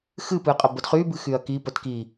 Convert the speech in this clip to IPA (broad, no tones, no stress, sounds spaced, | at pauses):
x ɨ p ɨ qʼ ə b ə d χ y b ɨ x y ɐ̯ k i p ə t k i